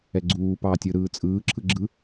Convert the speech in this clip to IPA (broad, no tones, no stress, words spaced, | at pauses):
ɛɡ͡ǀuːpɑː tʲɯɾɯː t͡sʼɯːǁʰɯ ɡ͡ǁɯ